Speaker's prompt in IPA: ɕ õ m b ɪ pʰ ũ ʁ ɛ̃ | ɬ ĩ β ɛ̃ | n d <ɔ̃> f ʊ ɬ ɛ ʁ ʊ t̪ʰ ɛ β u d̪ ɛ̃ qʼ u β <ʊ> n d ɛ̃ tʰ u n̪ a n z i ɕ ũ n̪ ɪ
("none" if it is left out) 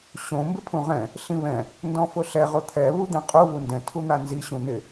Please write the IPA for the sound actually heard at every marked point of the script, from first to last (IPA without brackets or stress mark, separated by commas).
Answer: ɔ̃, u